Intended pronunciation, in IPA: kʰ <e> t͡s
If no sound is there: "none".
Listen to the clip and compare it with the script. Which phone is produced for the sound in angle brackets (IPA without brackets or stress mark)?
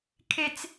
e